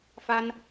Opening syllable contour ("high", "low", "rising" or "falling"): high